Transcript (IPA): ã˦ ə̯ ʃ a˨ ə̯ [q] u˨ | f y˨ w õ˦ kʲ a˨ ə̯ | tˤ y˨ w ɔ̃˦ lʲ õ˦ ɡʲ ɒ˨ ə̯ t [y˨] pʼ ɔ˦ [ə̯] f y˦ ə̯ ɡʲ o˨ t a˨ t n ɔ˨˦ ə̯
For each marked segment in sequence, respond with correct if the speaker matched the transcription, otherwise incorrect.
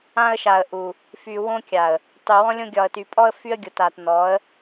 incorrect: ʔ, correct, correct

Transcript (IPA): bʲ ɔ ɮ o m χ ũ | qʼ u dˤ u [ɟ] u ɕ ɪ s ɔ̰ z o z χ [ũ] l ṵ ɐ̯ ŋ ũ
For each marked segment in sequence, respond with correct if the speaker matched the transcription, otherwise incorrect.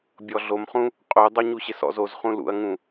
incorrect: ɲ, correct

